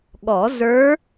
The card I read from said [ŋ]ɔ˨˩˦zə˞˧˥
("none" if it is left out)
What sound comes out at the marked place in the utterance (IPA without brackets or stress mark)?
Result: ɠ